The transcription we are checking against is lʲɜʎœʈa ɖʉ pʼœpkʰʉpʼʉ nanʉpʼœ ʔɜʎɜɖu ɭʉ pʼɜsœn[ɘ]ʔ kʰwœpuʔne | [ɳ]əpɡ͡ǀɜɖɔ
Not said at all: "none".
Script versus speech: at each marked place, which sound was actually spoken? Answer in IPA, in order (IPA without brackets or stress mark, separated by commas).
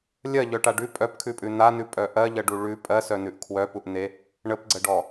ʉ, ɳ